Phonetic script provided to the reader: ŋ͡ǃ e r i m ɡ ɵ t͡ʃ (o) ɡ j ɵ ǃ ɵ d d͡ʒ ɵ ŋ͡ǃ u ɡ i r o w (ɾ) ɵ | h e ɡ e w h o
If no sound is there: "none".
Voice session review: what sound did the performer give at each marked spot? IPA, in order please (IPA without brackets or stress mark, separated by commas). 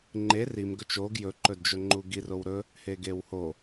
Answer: o, ɾ